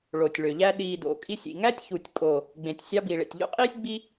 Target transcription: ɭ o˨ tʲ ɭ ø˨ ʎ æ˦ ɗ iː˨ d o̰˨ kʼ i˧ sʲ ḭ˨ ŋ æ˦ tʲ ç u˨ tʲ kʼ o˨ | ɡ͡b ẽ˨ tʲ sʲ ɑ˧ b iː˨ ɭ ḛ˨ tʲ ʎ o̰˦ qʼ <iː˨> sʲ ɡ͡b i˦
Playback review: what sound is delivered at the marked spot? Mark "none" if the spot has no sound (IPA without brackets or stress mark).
iː˦